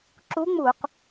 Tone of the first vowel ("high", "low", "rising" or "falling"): rising